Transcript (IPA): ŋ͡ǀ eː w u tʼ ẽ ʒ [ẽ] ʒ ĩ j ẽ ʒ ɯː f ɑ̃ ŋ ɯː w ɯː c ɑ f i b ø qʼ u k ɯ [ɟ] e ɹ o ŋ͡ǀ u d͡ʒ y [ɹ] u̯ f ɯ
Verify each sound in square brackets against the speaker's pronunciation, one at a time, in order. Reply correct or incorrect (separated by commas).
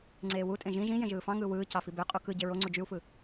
incorrect, correct, incorrect